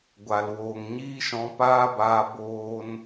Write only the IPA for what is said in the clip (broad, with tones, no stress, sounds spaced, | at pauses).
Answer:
ɡʷ a˨ l w oː˨ ŋ ɲ iː˦ ʃ ɔ̃˧ p aː˦ b aː˧ b oː˧ n